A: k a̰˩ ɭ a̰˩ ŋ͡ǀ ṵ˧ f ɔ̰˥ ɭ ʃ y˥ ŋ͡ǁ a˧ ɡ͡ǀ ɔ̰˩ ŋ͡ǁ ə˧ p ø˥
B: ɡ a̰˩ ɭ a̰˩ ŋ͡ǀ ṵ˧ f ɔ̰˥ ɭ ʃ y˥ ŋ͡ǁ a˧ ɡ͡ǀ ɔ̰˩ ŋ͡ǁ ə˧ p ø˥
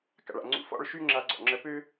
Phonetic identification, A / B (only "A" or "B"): A